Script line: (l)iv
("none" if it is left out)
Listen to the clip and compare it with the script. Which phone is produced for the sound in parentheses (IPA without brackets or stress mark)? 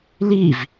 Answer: l